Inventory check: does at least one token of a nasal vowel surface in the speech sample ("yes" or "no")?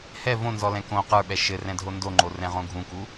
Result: yes